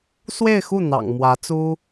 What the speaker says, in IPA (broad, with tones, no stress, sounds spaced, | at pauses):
s w e˥˧ ɪ̯ x u˥˩ n̪ ɑ̰˨˩ ŋ m w ä˧˥ t͡s u˥